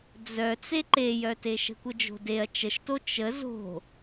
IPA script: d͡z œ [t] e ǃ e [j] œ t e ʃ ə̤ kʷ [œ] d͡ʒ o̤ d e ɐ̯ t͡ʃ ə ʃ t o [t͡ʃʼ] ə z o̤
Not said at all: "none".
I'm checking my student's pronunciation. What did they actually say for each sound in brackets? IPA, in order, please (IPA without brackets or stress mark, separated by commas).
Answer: t͡s, j, ə, t͡ʃ